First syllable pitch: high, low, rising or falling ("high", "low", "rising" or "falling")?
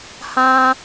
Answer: high